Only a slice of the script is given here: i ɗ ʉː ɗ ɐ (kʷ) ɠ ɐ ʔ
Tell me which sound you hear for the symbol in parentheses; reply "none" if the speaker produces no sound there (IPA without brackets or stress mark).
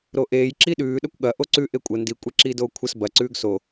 kʷ